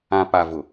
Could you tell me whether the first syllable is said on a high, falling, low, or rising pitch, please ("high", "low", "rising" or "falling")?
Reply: low